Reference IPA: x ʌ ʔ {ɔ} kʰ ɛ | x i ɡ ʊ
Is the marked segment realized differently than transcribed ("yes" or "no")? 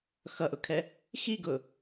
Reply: yes